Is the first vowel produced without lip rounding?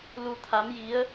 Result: no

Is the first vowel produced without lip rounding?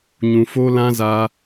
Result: no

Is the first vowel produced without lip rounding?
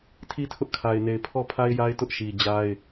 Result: yes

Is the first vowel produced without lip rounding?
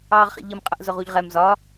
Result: yes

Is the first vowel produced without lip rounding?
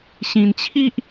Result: yes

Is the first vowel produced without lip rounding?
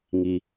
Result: yes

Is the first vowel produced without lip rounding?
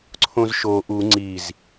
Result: no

